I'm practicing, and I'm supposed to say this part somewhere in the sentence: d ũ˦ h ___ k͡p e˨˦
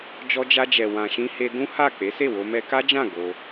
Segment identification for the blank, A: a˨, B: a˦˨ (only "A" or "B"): B